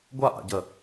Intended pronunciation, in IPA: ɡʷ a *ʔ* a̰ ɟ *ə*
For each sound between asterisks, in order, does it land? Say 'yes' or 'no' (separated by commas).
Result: yes, yes